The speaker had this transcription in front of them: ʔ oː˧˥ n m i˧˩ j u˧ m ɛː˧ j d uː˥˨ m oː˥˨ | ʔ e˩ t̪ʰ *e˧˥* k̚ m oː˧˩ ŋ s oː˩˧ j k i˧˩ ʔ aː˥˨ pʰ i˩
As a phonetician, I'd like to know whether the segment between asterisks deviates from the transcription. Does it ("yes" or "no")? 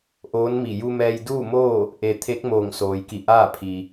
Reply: no